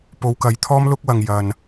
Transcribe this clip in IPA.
p o˨˧ w k ɐ˨ j t̪ʰ ɔː˥ m l ʊ˥ k̚ w ɐ˨ ŋ j ɐ˨ n

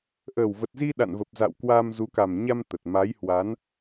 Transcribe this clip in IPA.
ʔ əː˨˩ w v ə˨˩ t̚ z i˧ ɗ a̰˧˨ n v ə˨˩ p̚ z a̰˧˨ w k w aː˧ m z u˨˦ k a˨˩ m ɲ a˧ m t̪ ə˨˩ t̚ m a˨˦ j h w a˨˦ n

